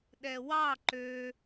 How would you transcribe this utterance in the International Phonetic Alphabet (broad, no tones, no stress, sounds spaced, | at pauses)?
ɗ ɛ w ɑ ǃ ø